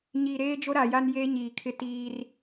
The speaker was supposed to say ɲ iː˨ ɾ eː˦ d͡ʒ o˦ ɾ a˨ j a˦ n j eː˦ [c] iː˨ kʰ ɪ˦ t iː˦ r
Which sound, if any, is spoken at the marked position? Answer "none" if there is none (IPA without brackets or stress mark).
ɲ